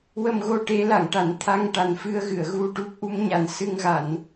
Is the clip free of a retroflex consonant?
no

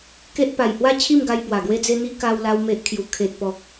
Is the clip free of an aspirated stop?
no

